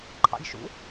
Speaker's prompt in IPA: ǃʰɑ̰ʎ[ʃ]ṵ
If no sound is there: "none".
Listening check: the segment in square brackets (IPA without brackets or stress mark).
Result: ʃ